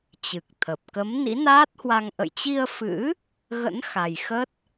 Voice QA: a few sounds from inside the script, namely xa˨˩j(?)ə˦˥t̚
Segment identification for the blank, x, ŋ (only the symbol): x